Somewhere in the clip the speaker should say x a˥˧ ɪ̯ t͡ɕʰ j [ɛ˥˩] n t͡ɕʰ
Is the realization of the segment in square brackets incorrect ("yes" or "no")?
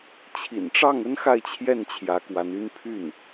no